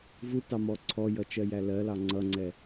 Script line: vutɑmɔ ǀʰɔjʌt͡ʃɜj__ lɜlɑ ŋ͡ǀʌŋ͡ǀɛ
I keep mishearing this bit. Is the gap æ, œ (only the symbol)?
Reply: æ